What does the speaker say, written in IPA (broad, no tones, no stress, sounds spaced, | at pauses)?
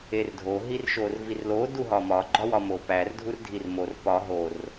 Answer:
e r dʱ o ɦ i r ʃ o r v i r l o d u ɦ ɒ m ɒ ɡ͡ǃ ɒ w ɒ m o p æ r dʱ u r dʱ i r m o r p ɒ ɦ o r